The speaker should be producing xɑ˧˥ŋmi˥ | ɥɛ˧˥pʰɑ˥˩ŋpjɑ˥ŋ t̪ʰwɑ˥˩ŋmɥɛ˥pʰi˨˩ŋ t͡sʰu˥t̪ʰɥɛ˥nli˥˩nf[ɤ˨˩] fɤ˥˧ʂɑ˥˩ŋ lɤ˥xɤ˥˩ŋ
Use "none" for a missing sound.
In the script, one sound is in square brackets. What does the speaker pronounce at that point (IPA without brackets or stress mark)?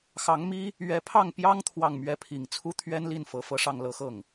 ɤ˨˩